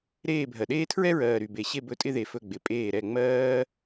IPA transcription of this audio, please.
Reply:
ɾ eː˦˨ bʱ ɜ˨ ɗ eː˥ tʰ ɹ ɛ˥ ɹ ɜː˨ ɾ y˨ b e˨ ɕ e˦˨ b ɵ˦˨ tʼ ɪ˥ ð e˨ f ɵ˦˨ ɡ͡b ɪ˨ pʼ eː˦˨ ɾ ɛ˦˨ ŋ͡m ɜː˥

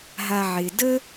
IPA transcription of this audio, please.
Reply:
ɦ a˨ ʕ ɪ˩ d ə˥

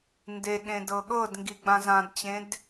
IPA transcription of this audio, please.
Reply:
n d e ɠ ẽ d ɤ ɠ ɤ d ŋ ɡ i ɡ͡b ã z ã d t͡ɕ ẽ d

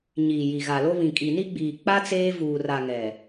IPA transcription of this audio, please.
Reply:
ɲ i˨ j i˨ ɣ a˨ l o˦ β ĩ˨ kʼ i˨ n i˦ ɡ͡b iː˨ k͡p a˦ t͡s eː˦ v uː˨ r a˨ ŋ ɛ˨

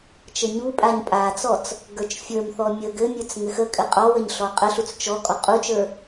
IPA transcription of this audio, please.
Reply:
t͡ʃ ə ɲ u pʼ a ɲ pʼ a t͡s ɔ t͡s | ɡ ə˞ t͡ʃ fʲ ə˞ m θ ɔ mʲ ə ɡ ɘ mʲ ə˞ t͡s ŋ ɘ x ə kʼ ɘ qʼ ɔ w ə ɲ ɬ ɔ qʼ ə ɬ u t͡s t͡ʃ ɔ kʼ ɔ qʼ u t͡ʃ ə˞

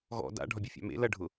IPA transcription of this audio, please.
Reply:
ɣ ɔ̰ d a̰ ɖʱ ɒ bʲ u fʲ a̰ m ḛ l ɐ ɖʱ ʊ

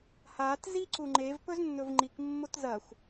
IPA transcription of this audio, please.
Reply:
h a t z i ǀ u ŋ͡ǃ e v p ɵ z nː ɵ v ŋ͡ǃ i k mː o t z ɐ xʷ

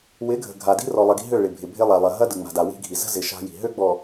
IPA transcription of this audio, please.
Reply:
w ɪ˨˦ ɡʱ ə̤˨ ɡʱ a˨ d i̤˦ r ɔ˨ lˠ ɐ˨ ɡ i̤˦ ɦ ø˦˨ ɭ ɪ˨ bʱ ɪ˨ bʱ ɪ˦ lˠ a˨ lˠ ɐ˨ ɦ ɐ˦ d ɯ˨ ŋ͡m a̤˨ d a˨ w i̤˦ ɡʱ i˨ z ə̤˦ z ɪ˨ ʃ a̤˦ j i̤˨ ɦ ø˦ ɡ͡b ɔ˨

